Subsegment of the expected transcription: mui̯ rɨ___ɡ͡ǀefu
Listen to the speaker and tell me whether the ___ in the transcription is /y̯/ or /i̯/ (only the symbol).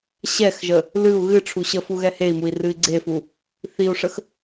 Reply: i̯